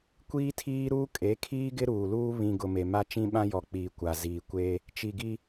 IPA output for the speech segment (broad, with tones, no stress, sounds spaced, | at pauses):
kʷ iː˦ tʰ iː˦ ɾ uː˦ kʼ e˨˦ kʰ iː˦ ɡ ɪ˦ ɾ uː˨ l uː˦ β ĩ˨ ɡ ʊ˨ m e˨ m a˦ t͡ʃ ĩ˦ ɓ ã˦ j ɔ˨ k͡p iː˨ kʷ a˨ z iː˨ kʷ eː˦ | t͡ʃ i˨ ɡ i˦